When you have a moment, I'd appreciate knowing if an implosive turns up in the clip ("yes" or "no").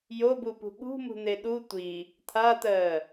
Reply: yes